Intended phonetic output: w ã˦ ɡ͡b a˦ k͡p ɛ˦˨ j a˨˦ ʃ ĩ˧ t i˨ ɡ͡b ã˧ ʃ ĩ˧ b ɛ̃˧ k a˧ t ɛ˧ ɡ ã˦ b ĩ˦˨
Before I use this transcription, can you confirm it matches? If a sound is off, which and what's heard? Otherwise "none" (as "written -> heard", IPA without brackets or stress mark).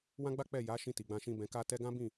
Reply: none